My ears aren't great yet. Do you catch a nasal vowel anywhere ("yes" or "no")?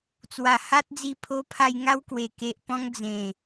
yes